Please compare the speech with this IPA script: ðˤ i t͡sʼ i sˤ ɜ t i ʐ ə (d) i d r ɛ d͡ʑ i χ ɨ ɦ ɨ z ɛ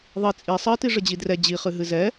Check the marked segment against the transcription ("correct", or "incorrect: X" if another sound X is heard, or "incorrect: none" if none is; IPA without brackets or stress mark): incorrect: d͡ʑ